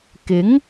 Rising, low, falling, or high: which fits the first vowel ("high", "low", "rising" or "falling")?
rising